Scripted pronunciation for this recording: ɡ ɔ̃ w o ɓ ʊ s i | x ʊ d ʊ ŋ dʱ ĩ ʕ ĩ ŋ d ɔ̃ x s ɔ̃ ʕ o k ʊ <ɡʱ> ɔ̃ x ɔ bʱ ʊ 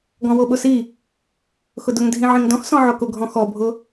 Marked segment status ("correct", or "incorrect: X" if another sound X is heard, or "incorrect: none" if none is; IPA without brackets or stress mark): correct